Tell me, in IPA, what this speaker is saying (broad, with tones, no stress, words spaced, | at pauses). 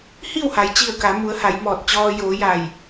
hi˥˨wha˩jt͡ɕi˧˩ə̯ ka˩˧mu˩˧ə̯ ha˩˧jmɔː˧˩t̚ t͡ɕɔː˧ joː˩˧ ja˧˩j